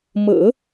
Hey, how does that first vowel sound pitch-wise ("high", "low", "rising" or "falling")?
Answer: low